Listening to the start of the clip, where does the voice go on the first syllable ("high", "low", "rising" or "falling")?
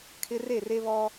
high